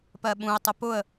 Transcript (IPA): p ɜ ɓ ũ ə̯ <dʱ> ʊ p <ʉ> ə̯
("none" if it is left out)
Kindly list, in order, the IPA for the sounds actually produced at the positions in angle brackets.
tˤ, ʊ

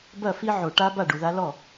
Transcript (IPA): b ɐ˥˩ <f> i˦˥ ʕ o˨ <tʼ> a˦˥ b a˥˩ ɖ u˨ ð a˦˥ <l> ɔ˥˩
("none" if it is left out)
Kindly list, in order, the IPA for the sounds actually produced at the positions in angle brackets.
f, ʈ, l

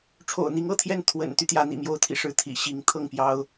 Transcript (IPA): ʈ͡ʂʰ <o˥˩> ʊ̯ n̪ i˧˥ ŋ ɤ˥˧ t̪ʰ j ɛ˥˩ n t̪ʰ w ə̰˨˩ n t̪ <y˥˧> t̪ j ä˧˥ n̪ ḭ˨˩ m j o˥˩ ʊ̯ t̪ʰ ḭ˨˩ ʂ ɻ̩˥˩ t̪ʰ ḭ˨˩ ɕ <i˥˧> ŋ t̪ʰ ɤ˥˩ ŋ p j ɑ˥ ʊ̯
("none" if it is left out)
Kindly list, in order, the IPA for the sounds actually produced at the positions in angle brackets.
o̰˨˩, y˦, i˧˥

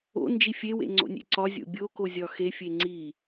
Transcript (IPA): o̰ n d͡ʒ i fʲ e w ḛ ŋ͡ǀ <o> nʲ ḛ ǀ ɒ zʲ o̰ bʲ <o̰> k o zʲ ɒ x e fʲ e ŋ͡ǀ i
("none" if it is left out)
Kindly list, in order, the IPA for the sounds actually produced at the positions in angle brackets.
o̰, o

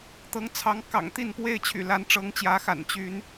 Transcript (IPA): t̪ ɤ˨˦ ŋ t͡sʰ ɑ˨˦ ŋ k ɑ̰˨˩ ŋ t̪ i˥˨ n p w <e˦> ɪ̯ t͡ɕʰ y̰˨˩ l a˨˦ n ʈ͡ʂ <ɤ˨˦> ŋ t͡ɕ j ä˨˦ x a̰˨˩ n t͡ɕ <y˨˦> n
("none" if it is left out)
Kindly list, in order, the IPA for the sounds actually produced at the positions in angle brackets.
e˥˨, ɤ˨˦, y˨˦

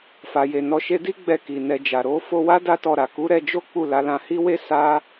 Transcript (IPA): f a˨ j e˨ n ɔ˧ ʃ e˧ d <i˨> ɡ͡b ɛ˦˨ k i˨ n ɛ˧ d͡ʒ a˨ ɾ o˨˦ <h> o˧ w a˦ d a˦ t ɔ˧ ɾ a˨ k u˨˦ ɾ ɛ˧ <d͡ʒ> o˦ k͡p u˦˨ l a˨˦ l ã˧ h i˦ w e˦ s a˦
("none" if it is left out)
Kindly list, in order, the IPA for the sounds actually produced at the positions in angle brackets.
i˦, f, d͡ʒ

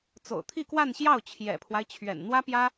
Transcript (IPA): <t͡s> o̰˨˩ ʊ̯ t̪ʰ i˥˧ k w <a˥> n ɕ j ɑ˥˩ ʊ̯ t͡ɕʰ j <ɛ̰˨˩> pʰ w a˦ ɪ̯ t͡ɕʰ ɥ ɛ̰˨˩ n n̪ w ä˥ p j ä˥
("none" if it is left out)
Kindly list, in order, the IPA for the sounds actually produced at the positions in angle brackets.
t͡s, a˥˧, ɛ̰˨˩

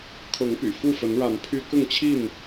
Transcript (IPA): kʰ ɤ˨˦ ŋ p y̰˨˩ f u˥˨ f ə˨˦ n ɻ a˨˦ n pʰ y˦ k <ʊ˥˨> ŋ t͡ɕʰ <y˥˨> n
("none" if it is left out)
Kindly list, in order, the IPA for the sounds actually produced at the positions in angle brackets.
ʊ˥˨, i˥˨

